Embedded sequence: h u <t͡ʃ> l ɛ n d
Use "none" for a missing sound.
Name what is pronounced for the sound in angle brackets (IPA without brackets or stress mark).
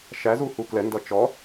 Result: k